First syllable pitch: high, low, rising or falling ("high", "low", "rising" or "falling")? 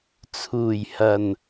low